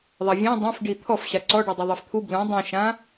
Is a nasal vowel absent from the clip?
no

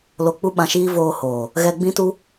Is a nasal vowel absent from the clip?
no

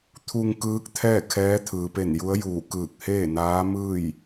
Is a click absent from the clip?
yes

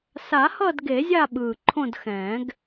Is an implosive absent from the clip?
no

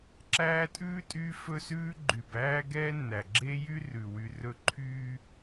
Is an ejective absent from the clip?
no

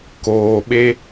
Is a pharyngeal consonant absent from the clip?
yes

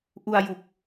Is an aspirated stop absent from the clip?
yes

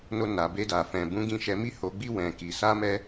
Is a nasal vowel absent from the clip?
no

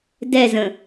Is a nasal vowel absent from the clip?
no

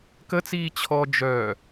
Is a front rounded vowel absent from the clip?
no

